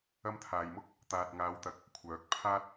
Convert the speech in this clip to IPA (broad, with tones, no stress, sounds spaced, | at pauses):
ɐ˧ m t̪ʰ aː˨ j m ʊ˥ k̚ | t̪ aː˨ t̚ ŋ aː˨˧ w t̪ ɐ˨ k̚ | kʷʰ œː˨˥ k̚ pʰ aː˥ t̚